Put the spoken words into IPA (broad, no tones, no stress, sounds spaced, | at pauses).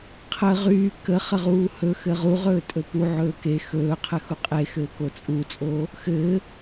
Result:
qʰ ə ʁ yː k ə χ ə ʁ uː h ɵ x ɘ ʁ u ʁ ɵː tʼ ɵ p u ʕ ɵː k e x ɵː qʰ ɘ x u qʼ e x ɘː k o t͡sʼ u t͡sʼ oː | x ɘː